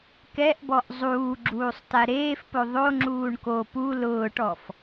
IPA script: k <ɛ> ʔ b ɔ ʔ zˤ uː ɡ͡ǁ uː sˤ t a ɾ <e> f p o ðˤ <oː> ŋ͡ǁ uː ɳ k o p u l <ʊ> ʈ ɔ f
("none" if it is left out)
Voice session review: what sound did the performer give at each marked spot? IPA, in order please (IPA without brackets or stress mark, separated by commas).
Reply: ɛ, eː, o, ʊː